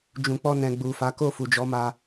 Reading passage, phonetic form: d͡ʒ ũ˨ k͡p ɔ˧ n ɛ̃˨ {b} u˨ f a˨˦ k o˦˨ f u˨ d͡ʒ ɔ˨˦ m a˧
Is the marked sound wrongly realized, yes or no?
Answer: yes